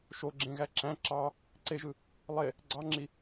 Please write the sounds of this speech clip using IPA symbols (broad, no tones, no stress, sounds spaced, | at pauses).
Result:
ʃ o ɡ͡ǁ ẽ ɣ æ ǁ æ̃ ǁ ɑ | ǀ e ʒ ɯ | lˠ e | ɡ͡ǀ ɑ ŋ͡ǁ i